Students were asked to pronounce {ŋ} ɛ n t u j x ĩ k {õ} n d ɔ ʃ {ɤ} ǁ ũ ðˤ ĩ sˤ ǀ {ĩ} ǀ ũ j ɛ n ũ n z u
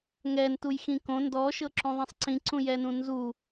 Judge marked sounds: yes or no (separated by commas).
yes, yes, yes, yes